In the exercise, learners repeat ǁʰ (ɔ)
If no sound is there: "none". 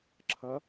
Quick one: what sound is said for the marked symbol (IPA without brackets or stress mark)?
ʌ